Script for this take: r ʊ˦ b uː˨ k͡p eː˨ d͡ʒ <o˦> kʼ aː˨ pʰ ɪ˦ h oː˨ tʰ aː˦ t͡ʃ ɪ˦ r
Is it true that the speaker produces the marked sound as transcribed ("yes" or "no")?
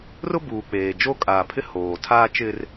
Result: yes